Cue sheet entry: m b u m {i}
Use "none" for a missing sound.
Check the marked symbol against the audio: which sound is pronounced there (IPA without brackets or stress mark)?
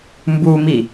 i